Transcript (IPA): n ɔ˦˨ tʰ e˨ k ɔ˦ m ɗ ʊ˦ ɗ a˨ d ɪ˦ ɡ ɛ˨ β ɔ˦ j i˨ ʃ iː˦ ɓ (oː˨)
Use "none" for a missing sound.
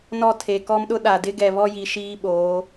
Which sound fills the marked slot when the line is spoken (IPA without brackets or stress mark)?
oː˨˦